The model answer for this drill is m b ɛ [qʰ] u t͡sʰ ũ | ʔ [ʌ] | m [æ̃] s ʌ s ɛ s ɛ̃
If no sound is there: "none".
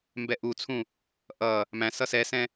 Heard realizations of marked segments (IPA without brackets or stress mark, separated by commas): ʔ, ʌ, æ̃